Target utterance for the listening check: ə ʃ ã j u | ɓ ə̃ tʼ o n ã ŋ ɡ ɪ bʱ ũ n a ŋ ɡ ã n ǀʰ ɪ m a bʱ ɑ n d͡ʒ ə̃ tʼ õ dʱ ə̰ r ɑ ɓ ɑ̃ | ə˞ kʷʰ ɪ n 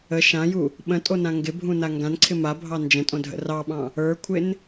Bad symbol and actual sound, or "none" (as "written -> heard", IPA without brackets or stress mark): none